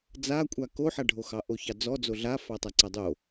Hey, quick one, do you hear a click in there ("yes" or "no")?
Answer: yes